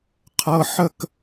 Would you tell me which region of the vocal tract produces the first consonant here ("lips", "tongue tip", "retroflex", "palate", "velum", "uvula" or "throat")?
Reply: uvula